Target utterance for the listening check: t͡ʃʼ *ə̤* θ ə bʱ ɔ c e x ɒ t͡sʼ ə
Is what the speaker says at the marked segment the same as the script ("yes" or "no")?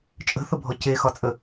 yes